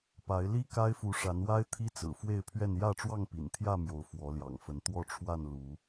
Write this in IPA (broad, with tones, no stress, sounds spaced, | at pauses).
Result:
p a˨˦ ɪ̯ l i˦ k a˦ ɪ̯ f u˨˦ ʂ a˨˦ n w a˦ ɪ̯ t̪ʰ i˦ t͡s ɹ̩˨˩ f w e˥˨ ɪ̯ pʰ ɥ ɛ˥˨ n j ä˥˨ ʈ͡ʂ w ɑ˥˨ ŋ p ḭ˨˩ n t̪ʰ j ä˥˨ m j o˨˦ ʊ̯ f w ɔ˨˦ l j ɑ̰˨˩ ŋ f ə˨˦ n t̪ w ɔ˥˨ ʈ͡ʂʰ w a˥˨ n l u˨˦